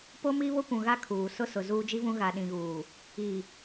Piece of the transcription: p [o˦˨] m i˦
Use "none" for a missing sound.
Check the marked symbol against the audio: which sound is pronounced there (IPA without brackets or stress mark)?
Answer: o˦